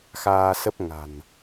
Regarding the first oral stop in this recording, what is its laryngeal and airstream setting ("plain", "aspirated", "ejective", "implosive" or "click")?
plain